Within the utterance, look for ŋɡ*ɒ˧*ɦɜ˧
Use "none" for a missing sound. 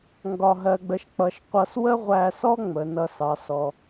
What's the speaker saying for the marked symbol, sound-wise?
ɒ˧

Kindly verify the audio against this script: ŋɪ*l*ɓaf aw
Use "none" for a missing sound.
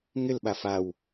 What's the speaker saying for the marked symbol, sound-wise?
l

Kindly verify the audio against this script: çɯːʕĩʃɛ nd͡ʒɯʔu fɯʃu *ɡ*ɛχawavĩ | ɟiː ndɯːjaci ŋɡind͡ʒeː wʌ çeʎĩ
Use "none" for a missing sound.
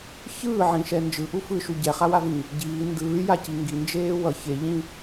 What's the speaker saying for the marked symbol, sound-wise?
ɟ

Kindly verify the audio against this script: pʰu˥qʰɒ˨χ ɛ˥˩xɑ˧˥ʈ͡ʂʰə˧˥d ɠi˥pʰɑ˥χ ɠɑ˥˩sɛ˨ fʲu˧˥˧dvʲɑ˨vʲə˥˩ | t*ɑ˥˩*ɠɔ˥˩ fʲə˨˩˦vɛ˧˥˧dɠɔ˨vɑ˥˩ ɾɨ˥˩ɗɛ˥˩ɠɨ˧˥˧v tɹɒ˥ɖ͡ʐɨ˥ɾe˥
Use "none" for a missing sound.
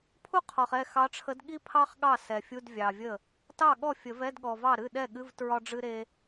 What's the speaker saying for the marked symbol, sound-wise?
ɑ˥˩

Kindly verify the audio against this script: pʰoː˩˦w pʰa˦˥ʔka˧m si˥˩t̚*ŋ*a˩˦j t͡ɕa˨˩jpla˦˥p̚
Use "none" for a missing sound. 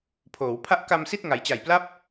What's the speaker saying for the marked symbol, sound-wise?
ŋ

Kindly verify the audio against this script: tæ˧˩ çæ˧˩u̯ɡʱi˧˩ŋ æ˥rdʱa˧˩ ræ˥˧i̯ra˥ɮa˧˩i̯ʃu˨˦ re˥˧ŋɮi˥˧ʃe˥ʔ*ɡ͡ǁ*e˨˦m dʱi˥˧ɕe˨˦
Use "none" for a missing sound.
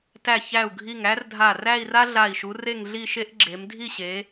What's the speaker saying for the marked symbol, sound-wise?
ɡ͡ǁ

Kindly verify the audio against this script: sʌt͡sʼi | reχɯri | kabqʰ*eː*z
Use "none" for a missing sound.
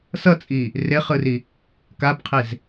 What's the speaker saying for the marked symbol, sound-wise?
e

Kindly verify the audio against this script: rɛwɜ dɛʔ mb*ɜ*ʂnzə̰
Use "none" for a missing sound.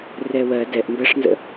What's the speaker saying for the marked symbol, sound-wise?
ɜ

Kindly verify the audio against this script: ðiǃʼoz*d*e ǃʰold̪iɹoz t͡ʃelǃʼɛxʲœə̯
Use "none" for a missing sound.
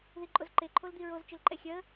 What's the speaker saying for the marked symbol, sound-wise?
ǃ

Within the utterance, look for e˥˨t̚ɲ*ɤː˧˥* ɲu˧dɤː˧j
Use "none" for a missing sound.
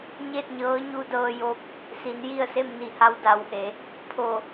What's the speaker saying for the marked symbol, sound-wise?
ɤː˧˥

